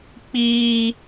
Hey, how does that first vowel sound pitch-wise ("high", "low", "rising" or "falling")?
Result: high